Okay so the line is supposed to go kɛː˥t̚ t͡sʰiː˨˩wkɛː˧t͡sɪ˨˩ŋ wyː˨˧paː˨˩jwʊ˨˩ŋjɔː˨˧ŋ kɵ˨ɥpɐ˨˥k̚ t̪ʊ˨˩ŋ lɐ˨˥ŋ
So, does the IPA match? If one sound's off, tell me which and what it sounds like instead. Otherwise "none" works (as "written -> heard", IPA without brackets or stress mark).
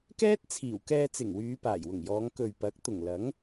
none